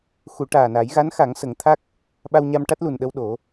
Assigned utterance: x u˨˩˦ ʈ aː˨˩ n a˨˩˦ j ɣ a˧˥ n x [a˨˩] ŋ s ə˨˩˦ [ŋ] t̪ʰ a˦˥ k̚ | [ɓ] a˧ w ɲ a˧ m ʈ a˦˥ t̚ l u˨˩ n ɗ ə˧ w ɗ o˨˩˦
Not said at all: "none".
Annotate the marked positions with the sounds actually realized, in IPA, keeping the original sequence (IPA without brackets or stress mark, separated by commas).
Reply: a˨˩˦, ŋ, ɓ